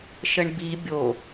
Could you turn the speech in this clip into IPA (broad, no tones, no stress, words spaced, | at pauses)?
ʃəɳbi bʲo